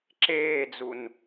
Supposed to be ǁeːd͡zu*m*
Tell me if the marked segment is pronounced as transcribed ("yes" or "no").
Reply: no